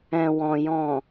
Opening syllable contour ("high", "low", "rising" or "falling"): low